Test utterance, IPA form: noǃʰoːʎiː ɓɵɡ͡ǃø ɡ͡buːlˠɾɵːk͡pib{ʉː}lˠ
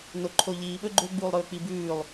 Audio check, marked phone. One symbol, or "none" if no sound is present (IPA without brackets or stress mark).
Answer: ʉː